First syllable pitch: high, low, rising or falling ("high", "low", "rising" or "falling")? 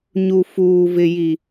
low